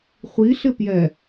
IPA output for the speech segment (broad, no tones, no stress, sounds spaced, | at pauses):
χʷ i ɬ ɪ p j ɛ